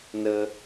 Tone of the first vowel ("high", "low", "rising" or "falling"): high